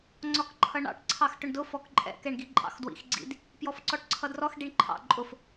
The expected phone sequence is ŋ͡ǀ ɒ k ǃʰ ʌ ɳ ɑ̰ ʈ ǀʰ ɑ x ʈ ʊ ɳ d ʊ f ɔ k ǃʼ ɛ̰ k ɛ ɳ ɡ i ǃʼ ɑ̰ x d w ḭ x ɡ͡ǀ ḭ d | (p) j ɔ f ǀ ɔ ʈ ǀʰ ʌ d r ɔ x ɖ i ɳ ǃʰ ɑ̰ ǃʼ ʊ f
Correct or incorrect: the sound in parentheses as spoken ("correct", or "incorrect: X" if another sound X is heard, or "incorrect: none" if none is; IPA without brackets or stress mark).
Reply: correct